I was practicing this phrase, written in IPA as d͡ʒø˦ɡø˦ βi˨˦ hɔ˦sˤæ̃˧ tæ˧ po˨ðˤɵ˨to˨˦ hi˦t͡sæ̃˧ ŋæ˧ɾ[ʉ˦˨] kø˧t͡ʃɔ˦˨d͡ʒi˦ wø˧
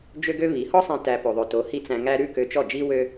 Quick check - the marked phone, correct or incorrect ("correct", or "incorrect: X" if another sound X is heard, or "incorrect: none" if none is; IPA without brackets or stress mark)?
correct